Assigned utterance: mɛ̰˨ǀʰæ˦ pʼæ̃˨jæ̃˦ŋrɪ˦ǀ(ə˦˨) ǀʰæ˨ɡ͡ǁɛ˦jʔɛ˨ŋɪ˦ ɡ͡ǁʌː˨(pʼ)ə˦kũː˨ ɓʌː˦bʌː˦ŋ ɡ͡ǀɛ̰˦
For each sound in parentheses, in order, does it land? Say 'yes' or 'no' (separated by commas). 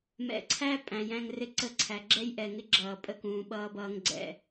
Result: yes, yes